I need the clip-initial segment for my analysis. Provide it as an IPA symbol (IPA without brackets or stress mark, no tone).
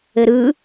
ɘ